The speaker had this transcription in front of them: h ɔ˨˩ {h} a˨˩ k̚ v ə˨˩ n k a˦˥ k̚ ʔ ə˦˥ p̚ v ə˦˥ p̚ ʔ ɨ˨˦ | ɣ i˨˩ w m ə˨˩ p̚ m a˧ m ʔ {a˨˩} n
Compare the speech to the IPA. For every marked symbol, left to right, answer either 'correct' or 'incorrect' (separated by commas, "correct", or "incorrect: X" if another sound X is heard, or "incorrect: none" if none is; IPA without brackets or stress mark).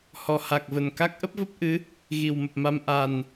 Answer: correct, correct